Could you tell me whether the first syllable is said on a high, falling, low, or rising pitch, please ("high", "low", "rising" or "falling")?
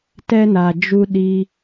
high